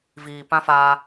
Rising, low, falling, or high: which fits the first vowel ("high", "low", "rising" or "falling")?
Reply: low